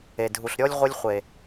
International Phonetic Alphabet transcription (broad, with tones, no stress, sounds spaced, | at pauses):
e˨ dʱ u˨ ɬ ɾʲ ɔ˦ lʲ ʁʷ ɨ˦ lʲ χʷ e˨